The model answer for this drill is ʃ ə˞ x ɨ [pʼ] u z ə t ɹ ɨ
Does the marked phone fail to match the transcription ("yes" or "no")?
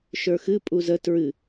no